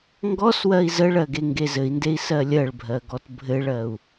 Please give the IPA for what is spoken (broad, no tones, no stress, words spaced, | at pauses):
ŋɡɔswɜi̯ zəɭɜ ɡeŋɡezɘi̯ndei̯ sɜlʲɜɭbʱɜ ɡɔtbʱɘɭɜu̯